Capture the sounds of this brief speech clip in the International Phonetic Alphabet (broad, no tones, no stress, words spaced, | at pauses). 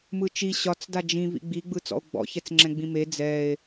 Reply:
mɯt͡ʃi ɕɒt͡s dad͡ʒĩvḭ ɡ͡biɡ͡bɯ t͡sɔ̰o̯ɡ͡bɔ̰çɛt͡s ŋ͡ǁɛ̃ɡ͡bĩme d͡zɛe̯